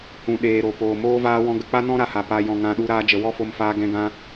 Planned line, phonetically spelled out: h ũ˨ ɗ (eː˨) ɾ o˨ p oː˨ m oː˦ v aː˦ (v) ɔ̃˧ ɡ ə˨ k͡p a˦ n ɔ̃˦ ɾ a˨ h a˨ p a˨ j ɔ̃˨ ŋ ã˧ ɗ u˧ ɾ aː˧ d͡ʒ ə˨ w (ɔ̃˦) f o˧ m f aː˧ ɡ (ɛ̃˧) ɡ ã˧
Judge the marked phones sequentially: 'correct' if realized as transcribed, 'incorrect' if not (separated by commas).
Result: correct, incorrect, incorrect, correct